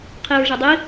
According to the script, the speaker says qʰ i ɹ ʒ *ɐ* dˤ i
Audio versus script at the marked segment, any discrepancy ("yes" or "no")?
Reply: no